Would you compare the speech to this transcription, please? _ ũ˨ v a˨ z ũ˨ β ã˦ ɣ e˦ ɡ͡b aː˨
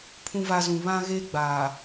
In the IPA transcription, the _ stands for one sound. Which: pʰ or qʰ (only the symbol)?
pʰ